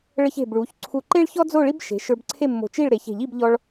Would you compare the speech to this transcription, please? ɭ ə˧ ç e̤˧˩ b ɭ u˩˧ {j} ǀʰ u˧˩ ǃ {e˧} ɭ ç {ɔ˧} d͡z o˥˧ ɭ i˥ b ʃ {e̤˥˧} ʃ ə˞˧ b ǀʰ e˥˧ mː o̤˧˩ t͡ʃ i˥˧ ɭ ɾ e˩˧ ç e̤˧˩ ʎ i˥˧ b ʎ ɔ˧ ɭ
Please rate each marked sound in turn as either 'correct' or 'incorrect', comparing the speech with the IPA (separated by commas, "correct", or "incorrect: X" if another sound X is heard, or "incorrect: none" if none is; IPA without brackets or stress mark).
incorrect: ç, incorrect: e˥, incorrect: ɔ˥, incorrect: e̤˩˧